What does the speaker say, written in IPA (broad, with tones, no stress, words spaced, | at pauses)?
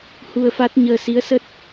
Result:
hu˧ə̯fa˦˥t̚ɲəː˧ si˨˦ə̯sə˦˥t̚